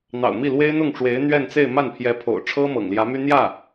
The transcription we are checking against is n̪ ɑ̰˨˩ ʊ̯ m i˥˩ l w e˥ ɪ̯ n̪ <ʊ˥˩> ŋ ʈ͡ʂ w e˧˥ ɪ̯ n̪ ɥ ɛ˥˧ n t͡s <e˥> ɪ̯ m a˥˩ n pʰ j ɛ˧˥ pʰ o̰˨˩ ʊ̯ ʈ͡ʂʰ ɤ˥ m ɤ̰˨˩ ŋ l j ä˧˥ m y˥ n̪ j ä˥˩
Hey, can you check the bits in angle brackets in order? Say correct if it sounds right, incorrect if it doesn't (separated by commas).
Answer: correct, incorrect